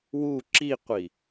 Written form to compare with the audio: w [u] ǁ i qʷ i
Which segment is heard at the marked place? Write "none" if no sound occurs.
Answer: u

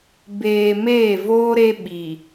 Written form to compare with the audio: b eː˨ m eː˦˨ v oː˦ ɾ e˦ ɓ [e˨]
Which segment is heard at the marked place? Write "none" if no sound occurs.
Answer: i˨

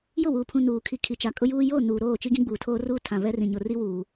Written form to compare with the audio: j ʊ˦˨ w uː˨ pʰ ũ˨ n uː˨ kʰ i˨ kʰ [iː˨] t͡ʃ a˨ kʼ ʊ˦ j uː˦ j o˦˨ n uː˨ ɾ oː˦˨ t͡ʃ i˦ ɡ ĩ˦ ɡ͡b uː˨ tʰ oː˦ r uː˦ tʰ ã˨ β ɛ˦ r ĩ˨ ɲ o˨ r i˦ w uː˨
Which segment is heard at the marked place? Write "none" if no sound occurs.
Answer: i˨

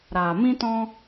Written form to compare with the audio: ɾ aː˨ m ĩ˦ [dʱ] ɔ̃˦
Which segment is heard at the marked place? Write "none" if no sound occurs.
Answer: t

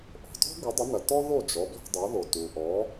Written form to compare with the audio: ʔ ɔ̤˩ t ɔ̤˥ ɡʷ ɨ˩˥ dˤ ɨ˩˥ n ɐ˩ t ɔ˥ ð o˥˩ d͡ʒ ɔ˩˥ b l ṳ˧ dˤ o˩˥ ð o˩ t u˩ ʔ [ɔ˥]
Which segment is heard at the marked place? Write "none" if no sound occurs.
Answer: ɔ˩˥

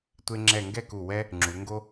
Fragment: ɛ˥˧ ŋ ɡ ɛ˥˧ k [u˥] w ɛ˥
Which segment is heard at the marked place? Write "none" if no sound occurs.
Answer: u˧˩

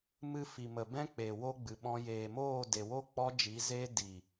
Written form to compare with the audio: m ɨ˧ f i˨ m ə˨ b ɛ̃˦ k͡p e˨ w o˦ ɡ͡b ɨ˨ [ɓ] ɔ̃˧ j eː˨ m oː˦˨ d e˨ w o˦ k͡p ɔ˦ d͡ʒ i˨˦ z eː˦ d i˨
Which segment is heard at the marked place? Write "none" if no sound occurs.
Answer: ɓ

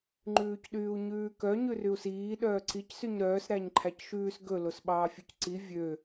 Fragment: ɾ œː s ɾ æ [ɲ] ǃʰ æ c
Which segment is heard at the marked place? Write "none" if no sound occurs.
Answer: ɲ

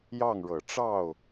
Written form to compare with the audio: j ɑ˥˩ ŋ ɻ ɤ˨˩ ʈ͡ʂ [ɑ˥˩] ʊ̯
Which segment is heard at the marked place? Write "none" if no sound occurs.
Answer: ɑ˥˩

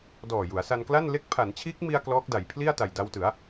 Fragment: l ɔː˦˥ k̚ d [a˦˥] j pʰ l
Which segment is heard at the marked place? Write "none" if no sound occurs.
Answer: a˩˦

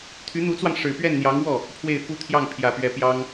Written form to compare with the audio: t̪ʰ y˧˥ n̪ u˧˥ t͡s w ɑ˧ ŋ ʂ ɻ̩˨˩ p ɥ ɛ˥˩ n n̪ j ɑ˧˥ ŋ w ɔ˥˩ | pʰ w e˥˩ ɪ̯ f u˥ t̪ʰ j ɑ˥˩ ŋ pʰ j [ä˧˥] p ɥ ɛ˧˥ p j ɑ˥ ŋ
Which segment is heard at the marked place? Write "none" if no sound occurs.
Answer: ä˨˩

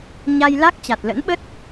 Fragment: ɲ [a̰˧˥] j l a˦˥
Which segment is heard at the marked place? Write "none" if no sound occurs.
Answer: a˧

